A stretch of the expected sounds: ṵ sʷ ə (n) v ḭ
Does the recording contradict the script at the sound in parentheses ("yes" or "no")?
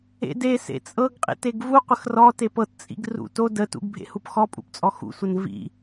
no